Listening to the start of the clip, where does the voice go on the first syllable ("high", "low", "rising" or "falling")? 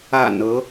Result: low